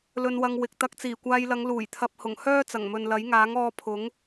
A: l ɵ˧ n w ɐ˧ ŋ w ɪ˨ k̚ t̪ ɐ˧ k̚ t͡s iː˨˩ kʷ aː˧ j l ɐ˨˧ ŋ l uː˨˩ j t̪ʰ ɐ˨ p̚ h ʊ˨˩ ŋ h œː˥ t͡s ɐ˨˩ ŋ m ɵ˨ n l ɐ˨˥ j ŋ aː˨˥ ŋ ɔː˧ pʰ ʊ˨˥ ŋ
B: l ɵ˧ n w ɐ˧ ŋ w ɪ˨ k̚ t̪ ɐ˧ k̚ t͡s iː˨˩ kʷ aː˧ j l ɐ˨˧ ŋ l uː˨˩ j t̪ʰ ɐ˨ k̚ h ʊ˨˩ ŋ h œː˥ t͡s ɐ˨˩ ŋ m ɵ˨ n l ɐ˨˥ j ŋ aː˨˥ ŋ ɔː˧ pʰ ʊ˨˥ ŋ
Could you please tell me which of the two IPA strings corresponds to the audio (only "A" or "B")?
A